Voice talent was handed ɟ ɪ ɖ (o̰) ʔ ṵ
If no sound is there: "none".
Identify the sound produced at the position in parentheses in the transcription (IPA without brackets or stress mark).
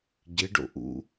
o̰